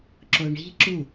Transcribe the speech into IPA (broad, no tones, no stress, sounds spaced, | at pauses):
ǁ o ɳ i̤ ǁ u